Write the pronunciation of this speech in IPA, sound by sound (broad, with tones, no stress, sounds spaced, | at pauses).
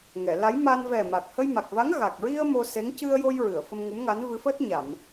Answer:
ŋ ɛ˨˩˨ l a˧˥ j m a˧ n v ɛ˨˩ m a˨˩ k̚ h ə˧ j m a˨˩ k̚ v a˧˥ ŋ ɣ a˨˩ k̚ ɹ i˧ ə̯ m o˧ s e˧˥ ŋ c ɨ˧ ə̯ j o˧ j ɹ ɨ˨˩˨ ə̯ f ə˧ m ŋ u˧˥ m ŋ a˧˥ n v ɨ˧˥ f əː˦˥ t̚ ɲ a˨˩˨ m